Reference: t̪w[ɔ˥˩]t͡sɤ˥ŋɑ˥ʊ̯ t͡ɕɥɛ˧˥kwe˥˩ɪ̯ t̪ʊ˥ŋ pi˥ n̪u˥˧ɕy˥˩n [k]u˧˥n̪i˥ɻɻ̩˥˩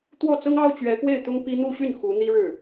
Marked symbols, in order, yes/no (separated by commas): yes, no